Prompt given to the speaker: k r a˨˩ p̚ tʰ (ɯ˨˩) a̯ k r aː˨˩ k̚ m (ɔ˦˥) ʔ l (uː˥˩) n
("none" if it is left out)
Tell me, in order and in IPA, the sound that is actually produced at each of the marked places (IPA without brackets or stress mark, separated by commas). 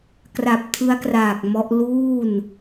ɯ˦˥, ɔ˦˥, uː˥˩